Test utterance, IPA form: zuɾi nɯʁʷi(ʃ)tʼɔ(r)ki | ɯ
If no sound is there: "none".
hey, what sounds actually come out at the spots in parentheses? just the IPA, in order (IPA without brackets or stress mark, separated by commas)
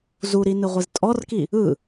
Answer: z, r